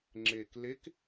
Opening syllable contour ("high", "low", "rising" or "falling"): low